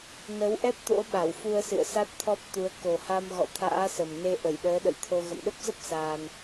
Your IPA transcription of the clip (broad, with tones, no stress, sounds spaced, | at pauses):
n ə˨˦ w ʔ ɛ˦˥ p̚ t̪ o̰˧˥ ɓ a˧˩ w f u˧ ə̯ s ɨ̰˧˨ ə̯ s a˦˥ t̚ t̪ʰ ɔ˦˥ p̚ t̪ u˨˦ ə̯ k o˨˩ h a˧ m ɣ ɔ̰˧˨ t̪ʰ a̰ː˧˥ s ə˨˩ m n e˧ ʔ ə˧˩ j ɗ əː˨˦ ɗ ə̰˧˨ j t̪ʰ o˧ ɣ ə̰˧˨ m ɗ ə˦˥ p̚ z ə˦˥ p̚ s aː˧ n